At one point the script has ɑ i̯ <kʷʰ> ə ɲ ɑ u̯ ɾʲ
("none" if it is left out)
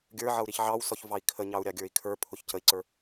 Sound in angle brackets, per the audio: kʰ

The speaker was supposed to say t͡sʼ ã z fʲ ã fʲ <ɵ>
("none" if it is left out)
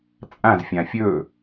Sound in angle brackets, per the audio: ɵ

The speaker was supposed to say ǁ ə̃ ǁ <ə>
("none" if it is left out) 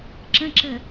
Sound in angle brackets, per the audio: ə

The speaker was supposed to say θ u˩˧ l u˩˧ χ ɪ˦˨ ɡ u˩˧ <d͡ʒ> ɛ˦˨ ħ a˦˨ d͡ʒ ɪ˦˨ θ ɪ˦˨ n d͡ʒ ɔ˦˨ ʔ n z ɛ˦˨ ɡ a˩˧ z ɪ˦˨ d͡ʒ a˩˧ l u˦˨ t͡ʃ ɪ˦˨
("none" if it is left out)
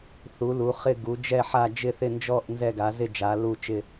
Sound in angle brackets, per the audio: d͡ʒ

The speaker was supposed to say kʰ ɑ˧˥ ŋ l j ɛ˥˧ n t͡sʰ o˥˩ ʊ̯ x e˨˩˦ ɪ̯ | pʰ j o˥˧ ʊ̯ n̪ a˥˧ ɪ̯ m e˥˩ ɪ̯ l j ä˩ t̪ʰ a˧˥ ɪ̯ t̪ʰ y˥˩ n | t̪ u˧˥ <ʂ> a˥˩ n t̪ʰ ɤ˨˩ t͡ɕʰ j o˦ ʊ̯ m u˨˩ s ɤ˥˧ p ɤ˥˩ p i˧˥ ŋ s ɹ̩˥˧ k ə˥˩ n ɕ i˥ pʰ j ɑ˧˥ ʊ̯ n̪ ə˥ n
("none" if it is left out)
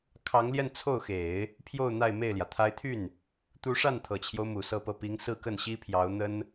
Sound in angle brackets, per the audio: ʂ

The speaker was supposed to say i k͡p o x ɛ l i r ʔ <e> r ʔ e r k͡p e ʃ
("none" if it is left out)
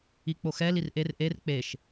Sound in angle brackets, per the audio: e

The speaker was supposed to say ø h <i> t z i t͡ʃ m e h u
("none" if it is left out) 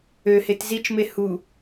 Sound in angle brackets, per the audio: e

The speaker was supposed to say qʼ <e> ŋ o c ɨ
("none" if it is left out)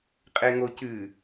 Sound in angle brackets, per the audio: e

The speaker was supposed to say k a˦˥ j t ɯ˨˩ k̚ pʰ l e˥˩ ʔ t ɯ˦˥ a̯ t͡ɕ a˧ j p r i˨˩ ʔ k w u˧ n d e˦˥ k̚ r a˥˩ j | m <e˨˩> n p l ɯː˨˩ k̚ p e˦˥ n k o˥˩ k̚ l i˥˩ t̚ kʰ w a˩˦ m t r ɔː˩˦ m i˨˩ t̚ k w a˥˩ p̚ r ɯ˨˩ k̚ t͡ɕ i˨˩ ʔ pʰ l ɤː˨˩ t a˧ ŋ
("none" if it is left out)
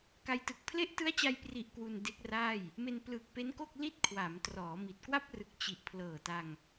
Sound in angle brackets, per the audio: e˧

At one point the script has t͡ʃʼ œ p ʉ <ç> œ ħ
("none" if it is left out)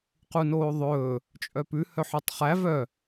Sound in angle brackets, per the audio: h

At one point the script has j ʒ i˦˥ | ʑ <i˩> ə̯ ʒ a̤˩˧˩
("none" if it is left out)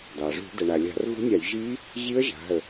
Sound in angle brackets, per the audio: i˦˥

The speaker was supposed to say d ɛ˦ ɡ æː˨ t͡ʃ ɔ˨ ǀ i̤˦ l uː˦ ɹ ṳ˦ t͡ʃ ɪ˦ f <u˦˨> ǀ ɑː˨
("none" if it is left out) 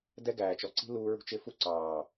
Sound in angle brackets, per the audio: u˦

